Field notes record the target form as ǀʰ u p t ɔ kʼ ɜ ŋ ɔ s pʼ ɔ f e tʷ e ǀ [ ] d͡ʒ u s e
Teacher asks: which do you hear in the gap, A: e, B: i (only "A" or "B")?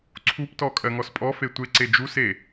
A